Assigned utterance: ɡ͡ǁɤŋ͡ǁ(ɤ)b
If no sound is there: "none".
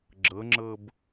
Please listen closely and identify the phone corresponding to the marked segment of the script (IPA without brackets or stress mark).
ɤ